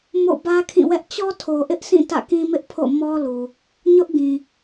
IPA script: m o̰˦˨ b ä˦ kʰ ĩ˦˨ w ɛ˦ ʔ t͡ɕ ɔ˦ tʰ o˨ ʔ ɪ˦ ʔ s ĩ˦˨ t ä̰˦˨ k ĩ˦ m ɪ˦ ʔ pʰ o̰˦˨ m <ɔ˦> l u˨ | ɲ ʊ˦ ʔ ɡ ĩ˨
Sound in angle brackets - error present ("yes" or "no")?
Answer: no